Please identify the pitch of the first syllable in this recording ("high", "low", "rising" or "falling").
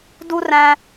high